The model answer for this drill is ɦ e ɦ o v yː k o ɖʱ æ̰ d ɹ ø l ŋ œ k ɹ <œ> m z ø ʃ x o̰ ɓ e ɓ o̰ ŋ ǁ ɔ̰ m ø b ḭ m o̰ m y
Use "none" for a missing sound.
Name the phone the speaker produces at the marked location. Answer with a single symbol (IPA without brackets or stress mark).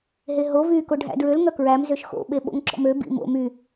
æ